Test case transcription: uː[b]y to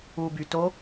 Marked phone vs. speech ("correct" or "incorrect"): correct